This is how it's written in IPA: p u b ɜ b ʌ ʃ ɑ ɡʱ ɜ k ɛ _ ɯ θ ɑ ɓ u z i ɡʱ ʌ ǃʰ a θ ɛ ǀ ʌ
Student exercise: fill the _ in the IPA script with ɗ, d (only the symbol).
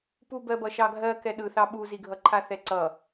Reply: ɗ